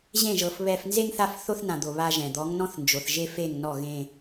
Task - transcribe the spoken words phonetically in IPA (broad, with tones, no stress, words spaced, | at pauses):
ʑẽ˦˨ʒɤ˨f βɛ˨fnze˦ŋθa˦˨f θo˦θnã˨d̪o˨ βa˦ʒɛ̃˨ d̪ɔ˨˦ŋnɔ̃˦θnd͡ʒo˨θ ʒe˦fe˦˨ŋnɔ˦˨ ɣẽ˦